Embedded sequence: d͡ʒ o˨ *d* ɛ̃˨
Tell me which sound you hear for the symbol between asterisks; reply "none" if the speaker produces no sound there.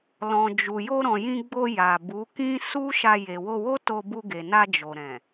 ɾ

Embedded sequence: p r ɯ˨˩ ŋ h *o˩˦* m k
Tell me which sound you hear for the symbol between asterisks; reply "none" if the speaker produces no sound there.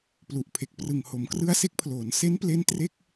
o˩˦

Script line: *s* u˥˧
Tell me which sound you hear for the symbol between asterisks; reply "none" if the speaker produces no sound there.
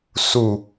s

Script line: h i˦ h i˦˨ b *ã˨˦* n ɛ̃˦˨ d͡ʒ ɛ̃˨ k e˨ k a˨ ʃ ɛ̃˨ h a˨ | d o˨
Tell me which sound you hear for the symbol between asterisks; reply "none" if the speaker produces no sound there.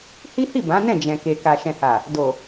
ã˨˦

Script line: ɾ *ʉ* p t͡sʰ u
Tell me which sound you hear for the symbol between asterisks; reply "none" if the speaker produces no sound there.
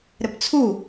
ɘ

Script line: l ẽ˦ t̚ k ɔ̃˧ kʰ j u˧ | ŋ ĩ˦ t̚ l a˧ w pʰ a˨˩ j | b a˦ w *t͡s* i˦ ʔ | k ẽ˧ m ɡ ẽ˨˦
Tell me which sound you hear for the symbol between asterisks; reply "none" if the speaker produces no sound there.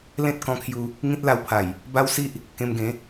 s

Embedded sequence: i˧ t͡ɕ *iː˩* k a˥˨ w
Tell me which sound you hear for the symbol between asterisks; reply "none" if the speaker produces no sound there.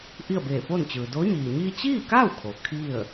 iː˥˨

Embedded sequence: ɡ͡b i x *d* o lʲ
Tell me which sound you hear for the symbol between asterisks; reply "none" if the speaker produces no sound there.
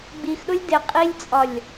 ɗ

